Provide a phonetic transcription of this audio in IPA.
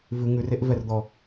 vʉ ŋʉreʔvɛrd̪ɔ

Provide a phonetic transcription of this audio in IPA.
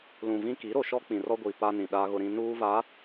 lũ˨vĩ˦ ki˨˦ɾo˨ʃɔ˦ k͡pĩ˨rɔ˦ ɡʷi˨pa˦nĩ˨ ɗa˦ɣʊ˦ɾĩ˦ nuː˦va˨˦

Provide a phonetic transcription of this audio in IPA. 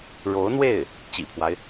ɻo˧˥ʊ̯n̪we˥˩ɪ̯ | t͡ɕḭ˨˩pʰwa˦ɪ̯

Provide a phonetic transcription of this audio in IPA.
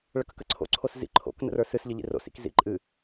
ɭəkəkəǀʰo̰ ǀʰoszḭ ǃʰo̰k nə̰rə˞sɨs ʎəʎḭro̰s ḭkzḭǃʼɨ

